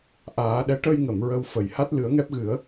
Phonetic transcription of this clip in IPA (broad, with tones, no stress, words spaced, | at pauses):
ʔaː˨˩˦ɗɛ˧˥ ʈə˧jŋə˨˩˨m ɹə˧wfə˨˩j ha˦˥t̚lɨ˨˩˦ə̯ŋɛ˦˥p̚ɣɨ˨˩˦ə̯